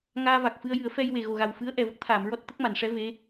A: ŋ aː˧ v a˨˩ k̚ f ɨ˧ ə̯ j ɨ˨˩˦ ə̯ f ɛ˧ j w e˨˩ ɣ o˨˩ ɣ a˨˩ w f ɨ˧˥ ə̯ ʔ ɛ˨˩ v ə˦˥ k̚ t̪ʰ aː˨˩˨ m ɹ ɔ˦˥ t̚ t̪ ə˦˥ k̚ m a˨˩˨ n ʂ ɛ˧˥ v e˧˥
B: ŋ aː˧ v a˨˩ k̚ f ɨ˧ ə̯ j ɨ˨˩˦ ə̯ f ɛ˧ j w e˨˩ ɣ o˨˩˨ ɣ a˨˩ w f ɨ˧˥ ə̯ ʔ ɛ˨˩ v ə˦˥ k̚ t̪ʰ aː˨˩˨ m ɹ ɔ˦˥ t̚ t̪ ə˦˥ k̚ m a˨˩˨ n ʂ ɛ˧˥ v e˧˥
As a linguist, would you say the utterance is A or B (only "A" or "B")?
A